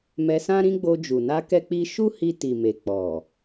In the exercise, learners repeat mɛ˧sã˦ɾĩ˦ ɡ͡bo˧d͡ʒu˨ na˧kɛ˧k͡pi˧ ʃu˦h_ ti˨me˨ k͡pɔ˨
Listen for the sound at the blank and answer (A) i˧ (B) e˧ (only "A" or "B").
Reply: A